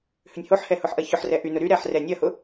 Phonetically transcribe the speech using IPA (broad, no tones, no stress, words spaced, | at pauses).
hʏnʲhoħhɛ hʊħʔɐçʊħrɛ ʔynʊ ɾyɾɛːħ rɛnʲɐhʊ